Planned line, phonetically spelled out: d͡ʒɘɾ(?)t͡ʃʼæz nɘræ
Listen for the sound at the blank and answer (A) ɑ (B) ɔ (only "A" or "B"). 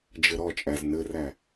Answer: B